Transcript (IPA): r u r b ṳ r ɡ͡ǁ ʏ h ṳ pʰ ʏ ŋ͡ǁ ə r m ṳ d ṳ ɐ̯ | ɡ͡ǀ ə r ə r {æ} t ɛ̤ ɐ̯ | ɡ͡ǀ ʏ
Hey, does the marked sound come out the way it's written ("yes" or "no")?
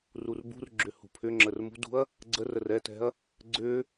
no